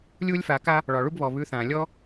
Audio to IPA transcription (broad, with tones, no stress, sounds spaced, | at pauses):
lʲ u˦ lʲ f a˨˦ k a˦ | ɭ ɒ˨ ɭ u˦ b β ɔ˨ β ʉ˧ θ ã˨ lʲ ɔ˦